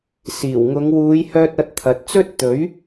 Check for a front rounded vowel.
present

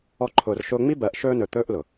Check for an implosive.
absent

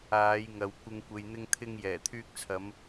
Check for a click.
absent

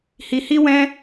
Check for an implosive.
absent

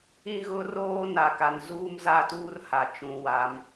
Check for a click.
absent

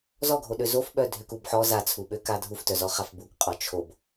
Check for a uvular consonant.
present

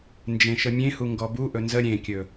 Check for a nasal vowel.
present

